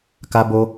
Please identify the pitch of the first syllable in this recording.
high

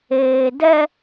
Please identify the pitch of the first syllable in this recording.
low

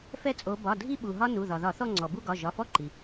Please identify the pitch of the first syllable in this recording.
high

